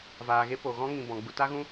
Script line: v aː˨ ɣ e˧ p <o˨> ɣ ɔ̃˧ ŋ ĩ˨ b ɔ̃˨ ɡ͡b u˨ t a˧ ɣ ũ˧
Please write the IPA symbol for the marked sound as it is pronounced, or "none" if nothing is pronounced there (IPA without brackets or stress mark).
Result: o˨